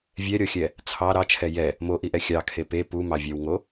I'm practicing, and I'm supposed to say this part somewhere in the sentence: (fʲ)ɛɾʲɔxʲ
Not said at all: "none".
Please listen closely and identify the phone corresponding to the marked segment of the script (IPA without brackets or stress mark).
vʲ